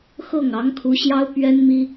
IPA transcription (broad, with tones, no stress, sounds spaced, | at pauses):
x ɤ˥˩ ŋ ɑ˧˥ ŋ kʰ u˧˥ ɕ j ɑ˥ ʊ̯ p ɥ ɛ˥ n m i˥